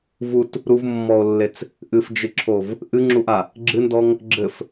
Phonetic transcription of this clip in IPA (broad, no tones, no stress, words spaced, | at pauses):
vut | ɾuvmːɔo̯lːet͡s | ʔɨfd͡ʒɨǁʰov | ʔɨŋ͡ǁuʔa | ɡ͡ǁɨndɔŋ | ɡ͡ǁɘf